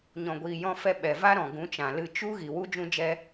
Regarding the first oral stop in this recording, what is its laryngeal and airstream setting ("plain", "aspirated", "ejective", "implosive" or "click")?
plain